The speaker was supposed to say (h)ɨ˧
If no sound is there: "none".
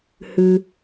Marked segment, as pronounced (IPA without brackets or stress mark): h